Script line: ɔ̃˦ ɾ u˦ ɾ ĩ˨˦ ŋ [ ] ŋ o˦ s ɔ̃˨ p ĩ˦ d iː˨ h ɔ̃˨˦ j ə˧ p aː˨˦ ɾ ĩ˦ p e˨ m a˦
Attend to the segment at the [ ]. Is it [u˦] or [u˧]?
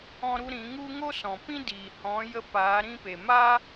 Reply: u˦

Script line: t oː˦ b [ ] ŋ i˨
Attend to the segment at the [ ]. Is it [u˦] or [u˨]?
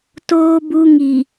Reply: u˦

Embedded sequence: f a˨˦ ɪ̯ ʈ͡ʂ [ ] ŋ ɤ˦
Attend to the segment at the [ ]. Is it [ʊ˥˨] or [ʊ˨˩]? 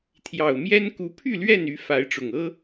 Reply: ʊ˨˩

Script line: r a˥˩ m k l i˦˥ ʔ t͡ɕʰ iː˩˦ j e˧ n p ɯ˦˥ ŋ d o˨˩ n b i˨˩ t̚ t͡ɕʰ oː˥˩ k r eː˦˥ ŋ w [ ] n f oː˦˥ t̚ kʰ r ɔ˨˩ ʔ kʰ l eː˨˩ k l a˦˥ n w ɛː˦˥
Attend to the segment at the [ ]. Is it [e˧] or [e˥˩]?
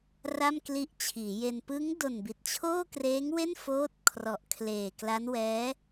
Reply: e˥˩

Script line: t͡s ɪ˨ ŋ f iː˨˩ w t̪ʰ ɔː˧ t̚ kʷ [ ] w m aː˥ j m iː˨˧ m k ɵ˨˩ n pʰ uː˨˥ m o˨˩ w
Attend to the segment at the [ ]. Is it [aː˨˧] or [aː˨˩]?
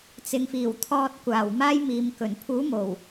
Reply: aː˨˩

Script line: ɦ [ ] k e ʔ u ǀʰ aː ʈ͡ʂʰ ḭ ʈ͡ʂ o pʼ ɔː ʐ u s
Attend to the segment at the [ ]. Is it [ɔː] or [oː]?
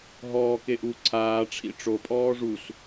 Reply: ɔː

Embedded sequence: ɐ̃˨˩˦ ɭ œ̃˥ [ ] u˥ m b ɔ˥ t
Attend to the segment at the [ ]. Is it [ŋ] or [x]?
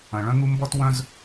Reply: ŋ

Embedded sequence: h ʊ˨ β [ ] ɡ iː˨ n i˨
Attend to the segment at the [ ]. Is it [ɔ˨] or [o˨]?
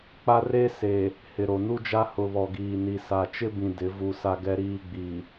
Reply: ɔ˨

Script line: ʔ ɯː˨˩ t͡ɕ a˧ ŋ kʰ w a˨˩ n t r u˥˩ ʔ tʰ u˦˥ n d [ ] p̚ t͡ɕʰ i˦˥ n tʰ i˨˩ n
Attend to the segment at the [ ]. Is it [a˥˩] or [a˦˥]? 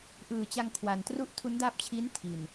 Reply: a˦˥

